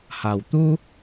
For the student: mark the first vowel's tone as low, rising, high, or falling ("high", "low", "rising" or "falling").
low